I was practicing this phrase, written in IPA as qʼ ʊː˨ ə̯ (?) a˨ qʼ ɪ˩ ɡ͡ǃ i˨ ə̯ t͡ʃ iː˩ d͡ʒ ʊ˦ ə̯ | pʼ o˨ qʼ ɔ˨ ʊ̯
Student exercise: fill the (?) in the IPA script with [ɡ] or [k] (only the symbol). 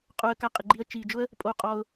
k